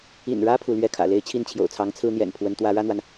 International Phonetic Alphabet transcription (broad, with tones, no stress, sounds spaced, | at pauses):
ḭ˨˩ n ɻ ä˥ pʰ u˧˥ l ɥ ɛ˥˩ kʰ ä̰˨˩ l e˧˥ ɪ̯ t͡ɕʰ i˥˩ n t͡ɕʰ j o̰˨˩ ʊ̯ t͡sʰ ɑ˧˥ ŋ t͡sʰ ɹ̩˥ n̪ j ɛ̰˨˩ n pʰ w ə˧˥ n t̪ w ä˧˥ ɻ ä˥ n̪ w a˨ n